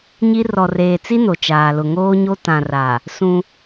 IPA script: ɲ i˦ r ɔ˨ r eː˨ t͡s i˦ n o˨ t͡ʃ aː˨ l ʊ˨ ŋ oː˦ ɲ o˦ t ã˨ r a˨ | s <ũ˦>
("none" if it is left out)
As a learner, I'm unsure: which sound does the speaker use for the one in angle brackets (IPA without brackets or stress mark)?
ũ˦